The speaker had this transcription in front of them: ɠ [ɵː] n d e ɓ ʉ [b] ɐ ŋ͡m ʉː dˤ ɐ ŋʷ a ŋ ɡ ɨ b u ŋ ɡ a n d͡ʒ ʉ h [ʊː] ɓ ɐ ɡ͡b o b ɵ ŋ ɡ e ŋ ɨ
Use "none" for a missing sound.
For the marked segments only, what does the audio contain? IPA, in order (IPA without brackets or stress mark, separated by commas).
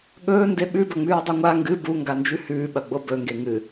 ɵː, b, ʉː